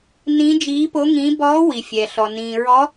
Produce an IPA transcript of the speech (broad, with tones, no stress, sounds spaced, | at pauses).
n ĩ˧˥ d͡ʒ iː˧˥ p o˧˥ ŋ ĩː˧˥ b ɔː˧˥ w i˨ fʲ ɛ˨ ɬ ɔ˨ n ĩː˨ ɹ ɔ˧˥